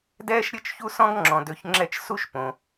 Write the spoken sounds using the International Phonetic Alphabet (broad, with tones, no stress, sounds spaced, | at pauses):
d ɛː˥ ʃ ɾʲ ɤ˥ t͡ʃ ç u˥ s ɔ̃˥ ɡ ŋ͡ǁ ɔ̃˩ d ø˨ ç ŋ͡ǁ ɛ˦ t͡ʃ s u˥ ʃ p õ˩